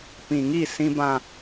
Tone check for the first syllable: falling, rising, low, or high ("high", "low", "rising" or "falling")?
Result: low